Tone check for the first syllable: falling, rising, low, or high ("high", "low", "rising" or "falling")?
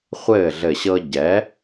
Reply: falling